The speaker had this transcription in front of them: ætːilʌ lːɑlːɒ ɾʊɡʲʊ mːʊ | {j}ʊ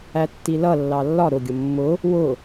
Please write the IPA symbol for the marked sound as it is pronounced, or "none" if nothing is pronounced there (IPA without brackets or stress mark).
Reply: w